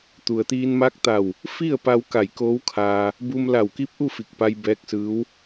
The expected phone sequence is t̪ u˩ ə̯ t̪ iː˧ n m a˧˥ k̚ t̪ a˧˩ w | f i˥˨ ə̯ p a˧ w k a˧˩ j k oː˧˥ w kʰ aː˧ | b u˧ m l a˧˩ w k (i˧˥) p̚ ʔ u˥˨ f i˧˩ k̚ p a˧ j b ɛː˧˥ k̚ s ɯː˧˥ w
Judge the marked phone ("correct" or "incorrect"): correct